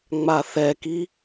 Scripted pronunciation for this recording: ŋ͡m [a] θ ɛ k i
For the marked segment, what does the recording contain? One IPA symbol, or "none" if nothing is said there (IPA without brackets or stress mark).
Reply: a